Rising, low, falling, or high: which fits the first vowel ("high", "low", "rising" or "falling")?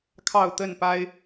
falling